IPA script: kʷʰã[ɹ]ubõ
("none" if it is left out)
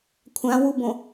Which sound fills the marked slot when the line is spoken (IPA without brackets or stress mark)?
w